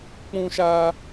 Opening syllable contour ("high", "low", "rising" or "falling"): high